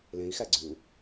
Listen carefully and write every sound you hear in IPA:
l ẽ i̯ x æ ɡ͡ǀ ʉ u̯

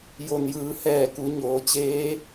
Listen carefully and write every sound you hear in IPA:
j o˩ n j ɯː˩˧ h ɛː˧˩ k u˩˧ ɲ oː˩˧ t͡ɕ eː˧˥

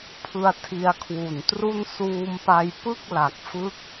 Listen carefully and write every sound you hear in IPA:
pʰ ɯ˧ a̯ tʰ i˧ a̯ kʰ w u˨˩ n t r u˥˩ n s uː˧ m p a˧ j p ɯ˥˩ k̚ l a˨˩ k̚ f ɯ˥˩ k̚

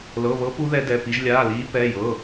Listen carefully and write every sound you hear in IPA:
l ɤ˧˥˧ β ɤ˦˥ p u˦˥ ð ɛ˦˥ d ɛ˧˥˧ p i˦˥ ʒ lʲ aː˧˥˧ l iː˦˥ p ɛ˧˥˧ j ɤ˧˥˧

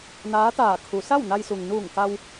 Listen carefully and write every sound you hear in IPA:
n aː˧˥ t̪ aː˧˩ kʰ u˩˧ s a˥˨ w n a˧ j s u˩ ŋ n uː˧˩ ŋ k a˧ w

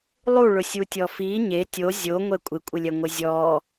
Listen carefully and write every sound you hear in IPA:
lˠ u ɭ ʊ sʲ u tʲ ɔ f i ɲ e tʲ o zʲ o ŋʷ ɛ kʷʼ ɪ kʷʼ ɪ lʲ ɛ ŋʷ ɪ zʲ ɔ

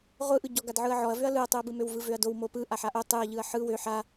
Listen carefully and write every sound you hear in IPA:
ʁʷ ɯ ʔ ɯ ɟ ɔ ɡ a d ʕ ɯ ɐ̯ ʕ ɔ ɐ̯ v ø ɐ̯ l ɯ ɐ̯ tˤ ɯ ɐ̯ b ɯ m ø w v ɯ v ø ɐ̯ d o w m o p ɯ ʔ a ħ a ʔ o tˤ ɯ ɐ̯ ʎ ɯ ɐ̯ ħ ɯ w ø ħ a

